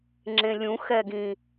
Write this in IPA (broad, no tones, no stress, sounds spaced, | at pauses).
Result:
ŋ͡ǁ ẽ lʲ ũ x ɛ ɡ ĩ